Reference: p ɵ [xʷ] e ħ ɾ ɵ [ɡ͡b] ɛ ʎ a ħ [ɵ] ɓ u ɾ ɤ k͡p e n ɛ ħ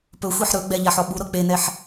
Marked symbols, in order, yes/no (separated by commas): yes, yes, no